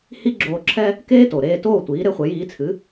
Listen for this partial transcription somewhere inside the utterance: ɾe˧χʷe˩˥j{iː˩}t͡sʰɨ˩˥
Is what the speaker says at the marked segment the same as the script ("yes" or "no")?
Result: no